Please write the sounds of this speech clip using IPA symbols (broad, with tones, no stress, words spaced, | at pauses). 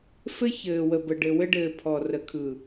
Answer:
fɘ˦ çɘː˨wə˨bə˨ ɖɘ˨wɘ˦ɖɘː˨ pʰɔ˨rə˨kʰɯ˨